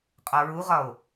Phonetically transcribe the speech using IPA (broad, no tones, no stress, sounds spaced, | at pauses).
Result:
qʼ ɒ ɹ u ʁ ɒ o̯